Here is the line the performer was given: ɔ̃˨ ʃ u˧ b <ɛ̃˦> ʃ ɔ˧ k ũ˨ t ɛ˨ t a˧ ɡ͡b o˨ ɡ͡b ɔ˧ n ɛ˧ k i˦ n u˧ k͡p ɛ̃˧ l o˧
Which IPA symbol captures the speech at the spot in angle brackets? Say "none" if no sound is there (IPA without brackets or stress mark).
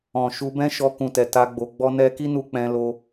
ɛ̃˦